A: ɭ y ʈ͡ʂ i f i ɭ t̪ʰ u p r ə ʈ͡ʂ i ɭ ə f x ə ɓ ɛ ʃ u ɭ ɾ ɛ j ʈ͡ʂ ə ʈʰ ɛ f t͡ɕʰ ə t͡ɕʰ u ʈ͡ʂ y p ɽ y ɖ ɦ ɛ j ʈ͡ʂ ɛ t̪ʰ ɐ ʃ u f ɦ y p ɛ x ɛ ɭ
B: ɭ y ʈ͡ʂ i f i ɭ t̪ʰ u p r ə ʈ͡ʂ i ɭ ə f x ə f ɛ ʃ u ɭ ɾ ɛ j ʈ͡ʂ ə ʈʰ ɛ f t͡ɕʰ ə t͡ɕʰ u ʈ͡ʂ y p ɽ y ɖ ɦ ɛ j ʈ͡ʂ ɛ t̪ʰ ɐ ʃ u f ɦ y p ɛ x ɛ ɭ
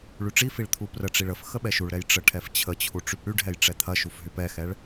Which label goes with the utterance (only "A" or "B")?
A